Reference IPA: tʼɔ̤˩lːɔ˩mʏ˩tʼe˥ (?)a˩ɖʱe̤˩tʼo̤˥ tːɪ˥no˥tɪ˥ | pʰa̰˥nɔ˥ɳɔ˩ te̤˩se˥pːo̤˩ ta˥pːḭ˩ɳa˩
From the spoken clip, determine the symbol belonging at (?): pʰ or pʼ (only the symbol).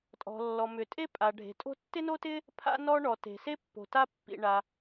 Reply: pʼ